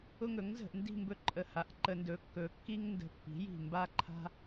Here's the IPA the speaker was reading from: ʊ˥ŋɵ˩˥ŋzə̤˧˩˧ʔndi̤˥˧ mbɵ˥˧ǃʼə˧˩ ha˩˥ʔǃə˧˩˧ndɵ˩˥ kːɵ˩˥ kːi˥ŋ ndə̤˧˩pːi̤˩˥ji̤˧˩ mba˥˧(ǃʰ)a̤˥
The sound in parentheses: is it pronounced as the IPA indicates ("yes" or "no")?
yes